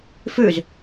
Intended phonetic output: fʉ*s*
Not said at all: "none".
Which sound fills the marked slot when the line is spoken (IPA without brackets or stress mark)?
z